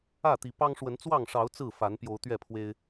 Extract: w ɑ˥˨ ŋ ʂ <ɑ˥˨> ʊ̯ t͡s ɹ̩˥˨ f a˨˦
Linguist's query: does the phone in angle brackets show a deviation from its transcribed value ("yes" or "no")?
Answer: yes